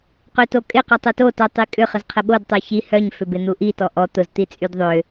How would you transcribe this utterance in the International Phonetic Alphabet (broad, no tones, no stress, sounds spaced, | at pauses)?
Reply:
q ø t o kʼ ɪ q ɔ tˤ ø t o t œ tˤ i kʼ ʏ χ ə z qʰ ə ɓ o d tˤ œ ç i h œ ɲ f ʏ b ɪ n̪ u ʔ i t ɔ ʔ ɔ t̪ ʊ z t̪ i t͡sʼ y d ðˤ ʏ